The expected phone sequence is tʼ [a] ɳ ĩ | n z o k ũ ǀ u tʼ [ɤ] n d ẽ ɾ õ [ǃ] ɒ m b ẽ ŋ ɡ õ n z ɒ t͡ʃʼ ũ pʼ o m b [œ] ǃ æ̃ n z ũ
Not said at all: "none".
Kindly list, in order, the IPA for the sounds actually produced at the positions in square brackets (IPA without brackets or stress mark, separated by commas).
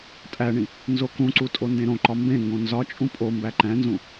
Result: æ, o, ǃ, æ